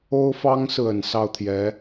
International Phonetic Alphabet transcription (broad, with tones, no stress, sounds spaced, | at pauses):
o˥ ʊ̯ f ɑ˥ ŋ s ɹ̩˨ ə˨˩ n s ɑ˥˩ ʊ̯ t̪ʰ j ɛ˧˥